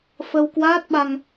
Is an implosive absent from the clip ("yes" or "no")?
no